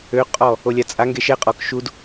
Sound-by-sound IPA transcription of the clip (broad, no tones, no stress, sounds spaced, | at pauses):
ø qʼ ɔ | o lʲ a t͡sʼ a ŋ ɡ e ʃ ɛ qʼ ɔ k ʃ u d